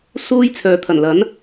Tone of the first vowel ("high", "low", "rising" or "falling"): high